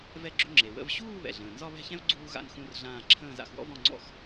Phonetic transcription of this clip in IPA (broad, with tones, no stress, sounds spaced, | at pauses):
v ɛ˥ ɡ͡ǁ ʏ˥ ŋ͡ǁ e˨ w ə̰˥˧ v ɕ uː˥˧ β ɛ̰˨ ɮ ə̃ː˨ n z ɒ˥˧ β ɛ̤˥˧ ç ɛ̃˥ v ɡ͡ǀ uː˥ ɣ a̰˥˧ n x ũ˥˧ r ɮ ãː˥˧ ǁʰ ə̃ː˥˧ z a̰˥˧ x w ɔ̰˥ v ɔ̃˥˧ ŋ͡ǀ ɔ̰˥˧ x